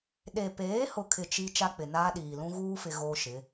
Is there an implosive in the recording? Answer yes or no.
yes